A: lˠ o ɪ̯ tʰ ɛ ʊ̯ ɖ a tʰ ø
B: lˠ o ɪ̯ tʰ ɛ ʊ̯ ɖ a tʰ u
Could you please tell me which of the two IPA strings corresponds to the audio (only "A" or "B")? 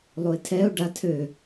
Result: A